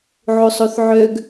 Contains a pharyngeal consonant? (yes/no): yes